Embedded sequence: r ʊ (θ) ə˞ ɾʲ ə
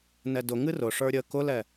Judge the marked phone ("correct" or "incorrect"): incorrect